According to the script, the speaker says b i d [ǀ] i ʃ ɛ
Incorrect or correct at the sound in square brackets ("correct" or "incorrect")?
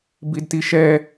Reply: incorrect